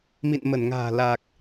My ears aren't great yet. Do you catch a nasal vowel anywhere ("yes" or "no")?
no